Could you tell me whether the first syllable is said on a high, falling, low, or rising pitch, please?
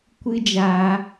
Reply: high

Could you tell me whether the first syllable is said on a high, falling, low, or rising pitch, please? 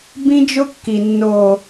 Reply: high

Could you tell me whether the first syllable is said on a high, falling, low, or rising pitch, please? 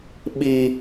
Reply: high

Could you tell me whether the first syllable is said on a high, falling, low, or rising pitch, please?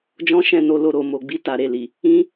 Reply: high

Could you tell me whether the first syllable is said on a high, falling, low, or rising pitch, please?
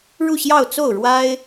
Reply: falling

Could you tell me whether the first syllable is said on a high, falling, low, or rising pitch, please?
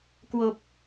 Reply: low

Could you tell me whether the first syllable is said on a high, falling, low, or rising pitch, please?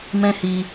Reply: high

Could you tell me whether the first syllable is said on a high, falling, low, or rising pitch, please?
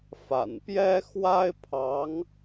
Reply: low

